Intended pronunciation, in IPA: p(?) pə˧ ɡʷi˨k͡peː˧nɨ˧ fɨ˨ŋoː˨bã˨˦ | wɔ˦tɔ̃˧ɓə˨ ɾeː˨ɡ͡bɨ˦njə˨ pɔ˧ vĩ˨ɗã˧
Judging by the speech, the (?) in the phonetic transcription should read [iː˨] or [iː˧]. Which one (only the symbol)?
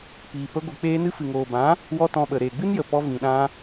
iː˨